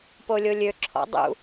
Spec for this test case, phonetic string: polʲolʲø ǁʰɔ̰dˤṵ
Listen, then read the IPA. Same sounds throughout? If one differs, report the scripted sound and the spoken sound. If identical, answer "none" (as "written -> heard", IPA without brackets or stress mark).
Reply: none